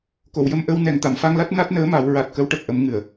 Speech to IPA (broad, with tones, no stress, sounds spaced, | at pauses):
k o˨˩˨ w j ə˧ m ʔ ə˧ w n ɛ˨˩ ŋ t̪ a˨˩˨ m f a˧ ŋ l a˦˥ t̚ n a˦˥ t̚ n əː˧˥ m a˨˩˦ w ɹ a˨˩ t̚ k ə˧˥ w ʈ ə˨˩ k̚ ʔ ə˨˩˦ m ŋ ɨ˨˩˨ ə̯